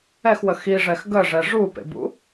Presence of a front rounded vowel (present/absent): absent